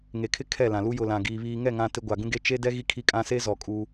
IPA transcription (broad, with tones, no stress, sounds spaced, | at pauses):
ŋ e˨ kʰ ɪ˦ kʰ ɛ˦˨ l ã˨ l u˦ j ʊ˨ l ã˨ ɡ iː˨ β iː˨ ŋ ɛ˦˨ ŋ ã˦ t ɪ˦ ɡʷ a˨ ɡ ũ˦ ɡ e˦ t͡ʃ e˦ d ɛ˦ ɣ i˦ kʰ i˦ kʼ ã˦ s e˦ z ɔ˨ kʼ uː˦